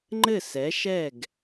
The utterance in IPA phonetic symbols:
ŋ͡ǃ ɘ˧˩ s ɛ˩˧ ʃ ɛ˧˩ ɡ

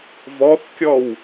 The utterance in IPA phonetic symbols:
v ɔ θ kʲ ɔ w

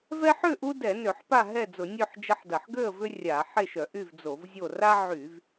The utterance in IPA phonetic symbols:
v ɛ˦ ħ ʏ˥˨ ʔ u˦ d ɛ˧˩˧ n ø˧˩˧ ħ p a˥˨ ɦ ɛ˥˨ d͡z ʊ˧˩˧ nʲ ø˥˨ ħ d͡ʒ ɐ˦ ħ d ɐ˧˩˧ ħ ɡ ø˥˨ ə̯ v ʏ˦ rʲ a˧˩˧ ħ e˥˨ ʃ œ˧˩˧ ʔ y˥˨ v d͡z o˧˩˧ v zʲ o˥˨ r a˦ ʕ y˧˩˧ v

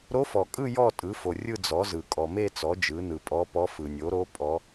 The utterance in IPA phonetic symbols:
ɾ o˧˥ f ɔ˨ kʼ ɯ˥˧ j ɔ˥˧ tʼ ɯ˩˥ f o˨ rʲ ɯ˥˧ d͡z ɔ˩˥ z ɯ˨ kʼ ɔ˨ m e˥˧ t͡s ɔ˩˥ d͡ʒ ɯ˩˥ n ɯ˨ pʼ ɔ˧˥ p ɔ˧˥ f ɯ˨ nʲ o˩˥ ɾ o˧˥ pʼ ɔ˧˥

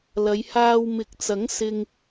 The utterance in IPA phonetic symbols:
l ɐ˨˧ j h aː˧ w m ɪ˨˥ k̚ t͡s ɐ˨˥ ŋ s ɪ˧ ŋ

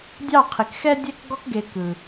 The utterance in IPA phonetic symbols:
dʲ ɑ˦˨ qʰ ɪ˨ k x ɛ˦ dʲ ɛ˦ k ɡ ɔ˧ k ɡ e˨ k ɯ˨

